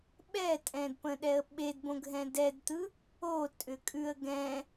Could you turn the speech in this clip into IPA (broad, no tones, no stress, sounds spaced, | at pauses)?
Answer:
ɓ ɛ tʼ ɛ̃ d p ə̃ ɗ ɛ ə̯ ɓ e d b õ ɡʱ ɛ̃ d ɛ d t̪ ɯ | o tʼ ʏ kʼ ʉ ə̯ ɡ ɛ̃